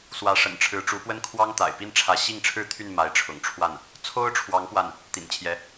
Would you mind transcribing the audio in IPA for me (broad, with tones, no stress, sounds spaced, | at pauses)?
s w ä˧˥ ʂ ə̰˨˩ n ʈ͡ʂʰ ɻ̩˧˥ ʈ͡ʂ u˧˥ p w ə˥ n kʰ w ɑ˥ ŋ t̪ a̰˨˩ ɪ̯ p i˥˩ n ʈ͡ʂʰ ä˧˥ ɕ i˥˩ ŋ ʈ͡ʂʰ ɻ̩˥ t̪ʰ y˥˩ n m a˧˥ ɪ̯ ʈ͡ʂʰ ʊ̰˨˩ ŋ ʈ͡ʂʰ w a˥˩ n | t͡sʰ o˥ ʊ̯ ʈ͡ʂʰ w ɑ˧˥ ŋ p w a˥˩ n | t̪ ḭ˨˩ n t͡ɕʰ j ɛ˧˥